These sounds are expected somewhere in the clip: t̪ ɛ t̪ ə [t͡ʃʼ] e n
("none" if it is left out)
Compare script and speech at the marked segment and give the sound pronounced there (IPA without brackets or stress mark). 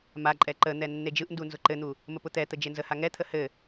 d͡ʒ